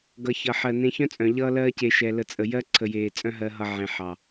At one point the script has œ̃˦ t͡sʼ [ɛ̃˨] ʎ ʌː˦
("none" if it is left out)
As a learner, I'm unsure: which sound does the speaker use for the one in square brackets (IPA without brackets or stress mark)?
œ̃˨